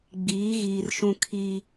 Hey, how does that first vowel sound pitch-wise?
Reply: rising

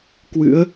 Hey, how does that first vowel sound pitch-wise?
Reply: rising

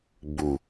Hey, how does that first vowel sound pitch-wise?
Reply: low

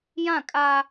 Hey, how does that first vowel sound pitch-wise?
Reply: falling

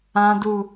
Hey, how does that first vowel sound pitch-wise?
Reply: low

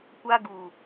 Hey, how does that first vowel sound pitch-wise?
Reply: high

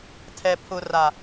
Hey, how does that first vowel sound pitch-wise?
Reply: low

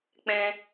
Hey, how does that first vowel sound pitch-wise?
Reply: low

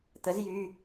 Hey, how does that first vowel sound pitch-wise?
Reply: rising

